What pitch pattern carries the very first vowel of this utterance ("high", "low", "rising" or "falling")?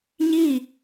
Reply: falling